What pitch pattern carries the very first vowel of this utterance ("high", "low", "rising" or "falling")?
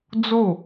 falling